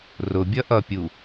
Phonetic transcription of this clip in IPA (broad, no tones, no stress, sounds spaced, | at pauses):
r ʊ bʲ ʌ ʔ ʌ pʲ u